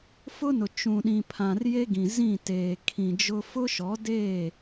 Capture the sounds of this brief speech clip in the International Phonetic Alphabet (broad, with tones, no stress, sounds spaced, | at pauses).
f ʊ˦ n ʊ˨ t͡ʃ ũ˨ ɗ ĩ˨ pʰ ã˨ r j e˦ ɡ ĩ˨ z ĩ˦˨ t eː˨ kʰ ĩ˨ d͡ʒ ʊ˦ f ʊ˦ ʃ ɔ˨˦ d eː˦˨